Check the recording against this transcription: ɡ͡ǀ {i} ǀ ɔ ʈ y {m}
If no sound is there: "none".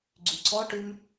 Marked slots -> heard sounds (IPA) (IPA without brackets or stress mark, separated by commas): y, m